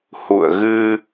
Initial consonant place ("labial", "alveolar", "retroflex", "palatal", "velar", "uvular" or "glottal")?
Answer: glottal